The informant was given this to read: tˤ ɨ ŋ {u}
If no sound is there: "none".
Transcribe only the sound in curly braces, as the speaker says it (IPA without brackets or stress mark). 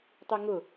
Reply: ʊ